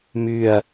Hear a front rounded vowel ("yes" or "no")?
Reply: yes